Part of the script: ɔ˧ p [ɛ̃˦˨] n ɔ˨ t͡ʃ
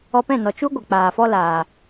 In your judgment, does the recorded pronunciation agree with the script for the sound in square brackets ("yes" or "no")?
yes